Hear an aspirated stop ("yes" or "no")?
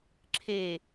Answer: yes